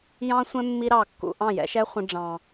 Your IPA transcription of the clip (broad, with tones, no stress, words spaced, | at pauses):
jɑ̃˦sʷɛ̃˦ mːi˧ɾɑː˨kːṵ˨ ʔɑ̃˦˨jɛ̰˧ʃɛː˦χʷə̃˧ ɖ͡ʐɑ̃ː˨